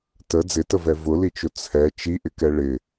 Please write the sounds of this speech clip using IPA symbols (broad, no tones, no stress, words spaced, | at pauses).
tə d͡zɪtəvɛ vʊlit͡ʃʊ t͡sʰɛ t͡ʃiʔɪkɛ ɭɪ